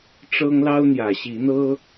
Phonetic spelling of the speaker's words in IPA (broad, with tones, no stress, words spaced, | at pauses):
ʈ͡ʂɤ˦ŋ lɑ˦ʊ̯n̪jä˨˩ɕi˨˦n̪ɤ˦